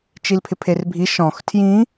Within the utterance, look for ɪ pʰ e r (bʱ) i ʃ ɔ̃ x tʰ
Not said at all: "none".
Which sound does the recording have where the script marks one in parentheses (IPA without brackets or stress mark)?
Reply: bʱ